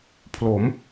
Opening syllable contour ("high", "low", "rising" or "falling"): rising